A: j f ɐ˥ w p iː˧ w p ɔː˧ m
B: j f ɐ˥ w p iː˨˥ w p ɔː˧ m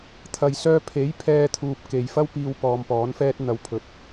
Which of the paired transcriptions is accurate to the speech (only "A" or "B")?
A